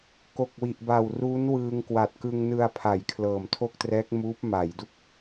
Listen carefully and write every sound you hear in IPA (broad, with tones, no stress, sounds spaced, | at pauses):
k o˨˩ k̚ w i˨˩ ʔ b a˨˩ w r uː˦˥ n w ɯː˧ ŋ k w a˨˩ t̚ k ɯ˧ ŋ n ɯ˧ a̯ pʰ a˩˦ j kʰ l ɤː˨˩ m tʰ o˥˩ k̚ t r ɛː˦˥ k̚ m uː˦˥ p̚ m a˩˦ j d u˥˩ k̚